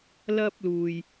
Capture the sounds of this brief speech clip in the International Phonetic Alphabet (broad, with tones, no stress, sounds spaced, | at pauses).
l ɐ˧ p̚ l uː˨˩ j